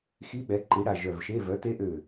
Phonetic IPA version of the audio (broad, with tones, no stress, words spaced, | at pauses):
xi˧˥ɓɛ˩˥ ǃi˩˥ɽa˧˩ ʒœ˧˩vʃe˧˥˧ vœ˩˥te˧˥ʔø˧˩